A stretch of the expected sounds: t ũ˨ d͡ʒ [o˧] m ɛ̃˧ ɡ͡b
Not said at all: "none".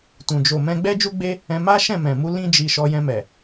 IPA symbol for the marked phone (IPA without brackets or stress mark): o˨